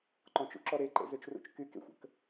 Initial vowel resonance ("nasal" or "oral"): nasal